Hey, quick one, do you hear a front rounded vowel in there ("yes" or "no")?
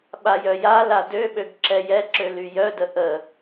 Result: yes